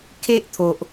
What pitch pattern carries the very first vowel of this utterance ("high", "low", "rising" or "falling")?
high